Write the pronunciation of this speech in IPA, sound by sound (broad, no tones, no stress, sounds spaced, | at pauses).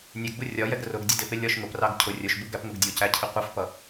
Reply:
nʲ ɛ ɡ b u rʲ ɒ j ɛ ɡ r ʊ ɡ dʲ ə d ɪ p ɪ lʲ ɒ ʃ ŋ ʊ p r ɑ ɡ cʰ ʊ rʲ ʊ ʃ b u ɡ æ p ŋ ʊ ɡ dʲ u c æ cʰ ɪ qʷ ʌ f p ʌ